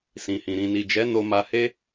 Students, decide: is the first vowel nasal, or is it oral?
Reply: nasal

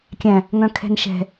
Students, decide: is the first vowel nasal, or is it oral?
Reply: nasal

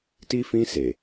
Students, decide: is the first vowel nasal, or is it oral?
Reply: oral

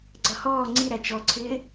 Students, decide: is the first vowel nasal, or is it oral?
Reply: oral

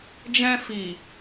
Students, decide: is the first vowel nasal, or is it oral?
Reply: nasal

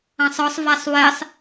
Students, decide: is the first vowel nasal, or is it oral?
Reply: nasal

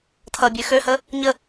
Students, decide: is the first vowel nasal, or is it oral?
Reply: oral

